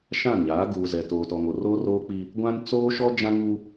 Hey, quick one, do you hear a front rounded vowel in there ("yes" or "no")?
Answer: no